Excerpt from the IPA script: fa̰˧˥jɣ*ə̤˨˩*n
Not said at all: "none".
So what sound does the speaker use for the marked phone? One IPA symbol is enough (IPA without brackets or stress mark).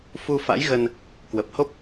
ə˧